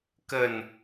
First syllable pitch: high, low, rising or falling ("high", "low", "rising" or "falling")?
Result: falling